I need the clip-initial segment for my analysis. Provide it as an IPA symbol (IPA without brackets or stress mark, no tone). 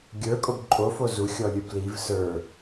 ɡʲ